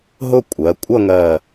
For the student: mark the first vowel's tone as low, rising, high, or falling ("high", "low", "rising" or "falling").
falling